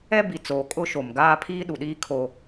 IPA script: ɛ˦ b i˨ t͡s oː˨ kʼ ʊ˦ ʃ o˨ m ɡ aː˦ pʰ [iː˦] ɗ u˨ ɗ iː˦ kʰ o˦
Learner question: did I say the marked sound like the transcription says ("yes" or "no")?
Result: yes